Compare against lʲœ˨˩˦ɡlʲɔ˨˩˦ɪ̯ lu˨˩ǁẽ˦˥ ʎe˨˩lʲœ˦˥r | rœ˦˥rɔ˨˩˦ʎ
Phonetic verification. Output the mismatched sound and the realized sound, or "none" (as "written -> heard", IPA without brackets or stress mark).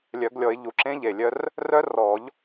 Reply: l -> ʎ